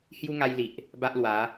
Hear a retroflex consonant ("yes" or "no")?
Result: no